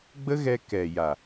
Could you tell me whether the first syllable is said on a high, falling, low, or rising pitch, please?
high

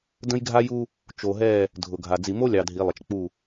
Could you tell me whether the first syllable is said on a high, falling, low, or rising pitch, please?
high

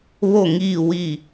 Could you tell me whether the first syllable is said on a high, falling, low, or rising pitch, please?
falling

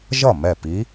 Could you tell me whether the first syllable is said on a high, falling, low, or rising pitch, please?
falling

